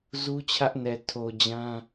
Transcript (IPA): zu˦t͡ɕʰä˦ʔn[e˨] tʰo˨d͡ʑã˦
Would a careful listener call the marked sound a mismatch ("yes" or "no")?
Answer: yes